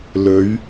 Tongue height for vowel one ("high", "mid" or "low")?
mid